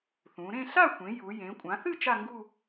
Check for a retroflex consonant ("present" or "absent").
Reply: absent